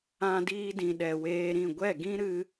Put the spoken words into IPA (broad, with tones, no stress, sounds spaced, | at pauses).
ã˧ d iː˧ d ĩ˨ ɗ ɛ˨ w eː˧ ɾ ĩ˦˨ ɡʷ ɛ˦˨ ɡ ĩ˦ ɾ ɨ˧